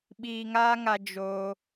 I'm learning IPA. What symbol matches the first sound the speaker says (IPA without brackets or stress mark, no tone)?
ɓ